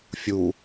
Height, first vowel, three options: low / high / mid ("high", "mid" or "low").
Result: high